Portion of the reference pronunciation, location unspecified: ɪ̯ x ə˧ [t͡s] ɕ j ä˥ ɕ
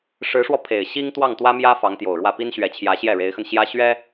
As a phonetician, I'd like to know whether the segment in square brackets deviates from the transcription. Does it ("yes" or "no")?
yes